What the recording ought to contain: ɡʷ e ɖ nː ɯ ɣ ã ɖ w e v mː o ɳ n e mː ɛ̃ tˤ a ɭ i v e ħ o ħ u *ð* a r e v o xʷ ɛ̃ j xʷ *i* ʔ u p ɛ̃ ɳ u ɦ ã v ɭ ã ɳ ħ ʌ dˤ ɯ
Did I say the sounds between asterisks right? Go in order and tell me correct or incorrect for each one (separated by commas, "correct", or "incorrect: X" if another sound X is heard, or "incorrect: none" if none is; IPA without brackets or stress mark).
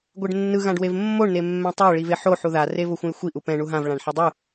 correct, correct